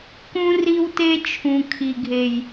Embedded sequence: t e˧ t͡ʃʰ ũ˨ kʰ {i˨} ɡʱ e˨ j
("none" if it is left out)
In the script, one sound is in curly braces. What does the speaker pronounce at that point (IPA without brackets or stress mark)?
i˨